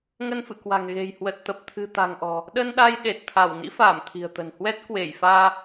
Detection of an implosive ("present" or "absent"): present